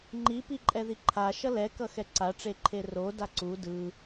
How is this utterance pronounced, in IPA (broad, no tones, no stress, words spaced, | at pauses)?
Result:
ŋ͡ǃipi ǃʼɛðiǃʰa ʃʌlɛkʌ xɛǀaʈ͡ʂeǃʰe ro daǀu dɯ